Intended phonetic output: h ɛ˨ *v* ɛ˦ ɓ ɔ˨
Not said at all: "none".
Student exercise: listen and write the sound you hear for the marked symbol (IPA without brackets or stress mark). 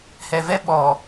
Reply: v